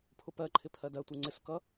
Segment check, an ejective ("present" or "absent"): absent